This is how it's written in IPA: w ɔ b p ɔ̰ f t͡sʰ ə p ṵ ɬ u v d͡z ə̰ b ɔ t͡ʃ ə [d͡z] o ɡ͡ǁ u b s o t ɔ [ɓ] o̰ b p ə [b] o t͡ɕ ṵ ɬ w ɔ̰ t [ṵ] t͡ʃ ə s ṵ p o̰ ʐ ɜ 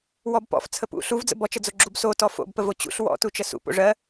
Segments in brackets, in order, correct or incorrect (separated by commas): correct, incorrect, incorrect, incorrect